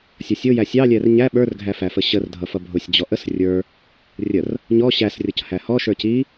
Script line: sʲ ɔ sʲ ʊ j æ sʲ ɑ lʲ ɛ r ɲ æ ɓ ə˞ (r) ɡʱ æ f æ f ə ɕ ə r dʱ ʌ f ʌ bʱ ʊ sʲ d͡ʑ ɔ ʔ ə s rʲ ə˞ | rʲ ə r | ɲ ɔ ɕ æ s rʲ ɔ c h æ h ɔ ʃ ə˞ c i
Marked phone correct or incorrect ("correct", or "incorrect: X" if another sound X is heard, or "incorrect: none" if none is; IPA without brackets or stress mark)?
correct